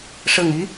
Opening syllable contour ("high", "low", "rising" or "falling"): low